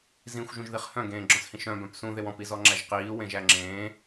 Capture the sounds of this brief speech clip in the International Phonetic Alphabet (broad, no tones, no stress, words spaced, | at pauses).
zĩxʷʒũʒðiχ hœ̃ɡẽːɡ͡ǁɔ̃shĩʃ œ̃bœ̃p sũðew ɔ̃pizɔŋ͡ǁæʒ qiːwẽʒæ ŋ͡ǁẽː